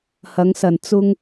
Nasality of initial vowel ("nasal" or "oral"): oral